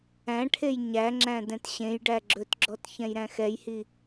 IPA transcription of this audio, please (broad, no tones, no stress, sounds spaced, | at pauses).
æ̃ ʈʰ e j ɲ æ ŋ͡ǁ æ̃ d ɛ̃ t ɕ ẽ j ɖ æ ɡ͡ǁ ɵ t ɡ͡ǁ ɔ t ç ɛ̃ j ɾ æ̃ x ɛ j h i